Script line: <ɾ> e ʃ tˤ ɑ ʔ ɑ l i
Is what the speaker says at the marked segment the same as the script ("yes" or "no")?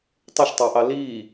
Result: no